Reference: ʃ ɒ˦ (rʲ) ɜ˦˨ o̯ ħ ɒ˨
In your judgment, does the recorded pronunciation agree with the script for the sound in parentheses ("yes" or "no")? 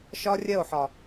yes